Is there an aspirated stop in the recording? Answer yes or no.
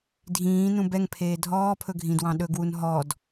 yes